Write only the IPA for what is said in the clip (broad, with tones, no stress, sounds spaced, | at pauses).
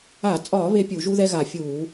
a˧˩˧ t͡sʼ ɒː˧˩˧ β e˦ pʲ u˧˩˧ ʒ u˦ ð ɛ˦ ɣ a˧˩˧ fʲ uː˧˩˧